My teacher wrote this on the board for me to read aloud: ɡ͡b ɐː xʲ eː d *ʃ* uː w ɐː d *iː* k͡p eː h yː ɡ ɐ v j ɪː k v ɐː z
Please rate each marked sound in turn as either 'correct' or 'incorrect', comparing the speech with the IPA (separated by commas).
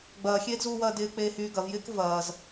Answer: incorrect, incorrect